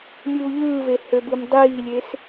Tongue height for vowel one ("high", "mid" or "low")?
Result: high